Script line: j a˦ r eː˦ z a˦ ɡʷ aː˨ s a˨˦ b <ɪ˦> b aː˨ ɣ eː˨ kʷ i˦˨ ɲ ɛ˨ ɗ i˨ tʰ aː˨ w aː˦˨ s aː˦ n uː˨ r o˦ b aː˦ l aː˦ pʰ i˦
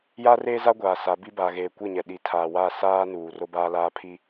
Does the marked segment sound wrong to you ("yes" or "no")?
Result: yes